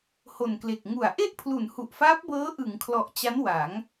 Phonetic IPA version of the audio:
ho˨˩nkle˨˩k̚ ŋu˩˦a̯ ʔe˥˩ʔpʰlu˩˦n hu˨˩ʔfaː˦˥p̚bɤː˦˥ ʔɯ˩˦ŋkʰlɔ˨˩ʔ t͡ɕa˦˥nwa˩˦ŋ

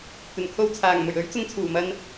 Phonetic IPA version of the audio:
t̪ɵ˨˩nkʰo˧wt͡sʰaː˨˩ŋmɵ˨˩ɥ ɵ˨˥ɥ t͡sʊ˧ŋt͡sʰuː˨˩mɐ˧n

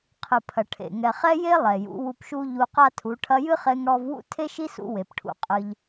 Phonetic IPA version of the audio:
qʰɨ˨pʰɐ˨ ʈʰḛ˨ŋɛ˨χɛ˦je˦ lˠɛ˨jṵ˨˦ wu˧pʃu˦ ʎu˧qa˦tʰu˨˦ ʈʰɐ˧jɨ˦χe˧ŋ ɽɔ˦v wṵ˦tʰe˦ʃi˦sṵ˧ we˨pʈʰṵ˧ qʼɨ˦ʎ

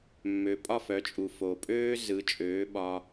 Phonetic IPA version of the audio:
mːø˩ pʼɒ˥˩fœ˩˥t͡ʃʼu˩ fo˩pʼøː˥ zɯ˩˥ t͡ʃʼøː˩˥ɓɒ˧

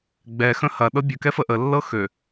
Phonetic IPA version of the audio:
ɡ͡bɛxə̃ hɐɗɤ bʲɵkɛfə ʔəlːɤ xø

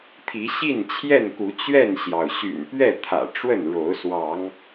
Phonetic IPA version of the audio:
t̪ʰi˨˦ɕi˥˨nt͡ɕʰjɛ˥˨nku˨˦ t͡ɕɥɛ˥˨nɕjɑ˩ʊ̯ ɕy̰˨˩npɥɛ˥˨t̪ʰä̰˨˩ ʈ͡ʂwə˥˨nɻo˨˦ʊ̯ swɑ˨˦ŋ

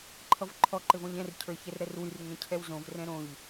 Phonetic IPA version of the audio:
ǃʰʌvǃʰɔ ǃɘvɔ̃ʎɛ̃r cʰə˞çɛrɾɛrwyr ŋɛ̃cʰɛwzõv rɛ̃ɾõʎ

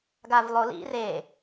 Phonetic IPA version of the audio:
ɡavlˠolḭ re

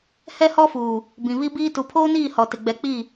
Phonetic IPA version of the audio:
hɛ˦hɔ˦fuː˨ | bĩ˨βi˦biː˦ tu˨pʰoː˦niː˦˨ hɔ˨tɪ˨ ɡ͡bɛ˨k͡pi˦˨

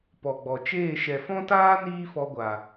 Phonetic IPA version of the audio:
pɔ˨ɡ͡bɔ˨t͡ʃeː˦˨ ʃɛ˨fɔ̃˦taː˦ niː˦fɔ˧ɡʷa˨

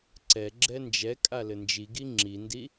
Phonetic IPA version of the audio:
ǀɛɡ͡ǁɛ nd͡ʒɛkʼalɘ nd͡ʒiɡi ŋ͡ǁindi

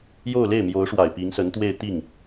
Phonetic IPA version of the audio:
jo˥˧ʊ̯le˥˩ɪ̯ mjo˧˥ʊ̯ ʂwa˨˩ɪ̯pi˧˥ŋsə˧˥nt̪we˥˧ɪ̯ t̪i˥˩ŋ

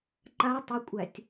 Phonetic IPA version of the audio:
ǃa tˤəkʷʼætʲ

